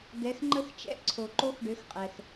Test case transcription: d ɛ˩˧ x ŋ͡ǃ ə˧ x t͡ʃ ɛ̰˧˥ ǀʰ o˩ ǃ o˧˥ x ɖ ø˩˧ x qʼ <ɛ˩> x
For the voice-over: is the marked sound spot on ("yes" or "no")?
yes